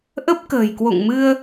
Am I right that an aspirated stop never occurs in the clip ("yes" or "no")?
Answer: yes